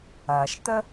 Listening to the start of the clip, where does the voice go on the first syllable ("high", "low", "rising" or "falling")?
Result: low